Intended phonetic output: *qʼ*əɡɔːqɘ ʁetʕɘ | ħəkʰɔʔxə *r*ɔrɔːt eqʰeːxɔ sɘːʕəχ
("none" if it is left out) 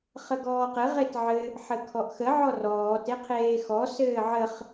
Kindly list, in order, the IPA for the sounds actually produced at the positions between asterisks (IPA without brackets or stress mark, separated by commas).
χ, ʕ